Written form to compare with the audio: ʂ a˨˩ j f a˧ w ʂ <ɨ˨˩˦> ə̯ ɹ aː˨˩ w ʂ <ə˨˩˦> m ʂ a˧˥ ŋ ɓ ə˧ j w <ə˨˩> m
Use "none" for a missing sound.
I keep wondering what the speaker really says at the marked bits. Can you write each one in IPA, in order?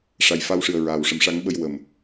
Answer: ɨ˨˩, ə˨˩˦, ə˨˩

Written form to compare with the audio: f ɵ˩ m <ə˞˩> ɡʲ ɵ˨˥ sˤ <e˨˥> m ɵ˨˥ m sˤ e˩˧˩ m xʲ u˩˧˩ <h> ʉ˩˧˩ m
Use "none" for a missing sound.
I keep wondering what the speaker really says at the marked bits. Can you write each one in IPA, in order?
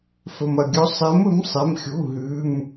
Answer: ɐ˩, e˨˥, ɦ

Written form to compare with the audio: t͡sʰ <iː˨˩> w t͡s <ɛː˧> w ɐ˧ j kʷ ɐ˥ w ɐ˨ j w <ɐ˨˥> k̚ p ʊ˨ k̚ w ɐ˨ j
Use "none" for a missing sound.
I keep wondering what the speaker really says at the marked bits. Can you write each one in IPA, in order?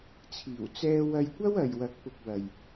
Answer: iː˨˩, ɛː˧, ɐ˨˥

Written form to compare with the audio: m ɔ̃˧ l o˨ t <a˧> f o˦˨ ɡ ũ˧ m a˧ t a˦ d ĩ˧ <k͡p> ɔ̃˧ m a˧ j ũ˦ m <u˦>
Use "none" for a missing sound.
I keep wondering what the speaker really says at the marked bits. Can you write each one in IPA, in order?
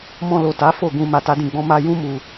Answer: a˨˦, ɡ͡b, u˧

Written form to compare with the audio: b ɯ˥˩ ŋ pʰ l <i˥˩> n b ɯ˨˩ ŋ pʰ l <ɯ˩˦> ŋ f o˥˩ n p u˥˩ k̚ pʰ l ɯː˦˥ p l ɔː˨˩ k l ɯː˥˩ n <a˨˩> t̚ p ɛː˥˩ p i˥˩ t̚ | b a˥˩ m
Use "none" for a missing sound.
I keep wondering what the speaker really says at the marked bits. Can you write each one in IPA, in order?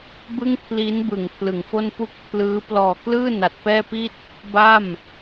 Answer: i˦˥, ɯ˩˦, a˨˩

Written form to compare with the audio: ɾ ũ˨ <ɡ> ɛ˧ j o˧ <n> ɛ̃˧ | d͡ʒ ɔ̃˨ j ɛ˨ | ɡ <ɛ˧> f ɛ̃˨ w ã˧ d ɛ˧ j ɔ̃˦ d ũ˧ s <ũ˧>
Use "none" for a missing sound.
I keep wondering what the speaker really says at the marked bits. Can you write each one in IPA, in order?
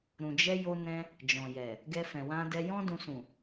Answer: d͡ʒ, n, ɛ˧, ũ˨

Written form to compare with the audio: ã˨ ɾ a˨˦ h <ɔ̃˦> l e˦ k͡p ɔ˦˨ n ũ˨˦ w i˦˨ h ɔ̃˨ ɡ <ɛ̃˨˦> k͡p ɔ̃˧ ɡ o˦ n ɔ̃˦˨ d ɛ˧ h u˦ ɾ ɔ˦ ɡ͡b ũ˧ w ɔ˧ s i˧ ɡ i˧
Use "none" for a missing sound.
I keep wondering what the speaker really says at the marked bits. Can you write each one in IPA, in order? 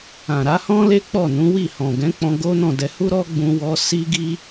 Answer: ɔ̃˦, ɛ̃˨˦

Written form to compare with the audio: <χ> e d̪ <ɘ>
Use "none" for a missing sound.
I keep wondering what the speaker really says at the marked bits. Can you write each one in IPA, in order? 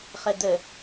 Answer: χ, ɘ

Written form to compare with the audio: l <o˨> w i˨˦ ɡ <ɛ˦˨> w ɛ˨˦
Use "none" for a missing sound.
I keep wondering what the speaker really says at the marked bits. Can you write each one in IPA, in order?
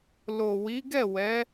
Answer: o˨, ɛ˦˨

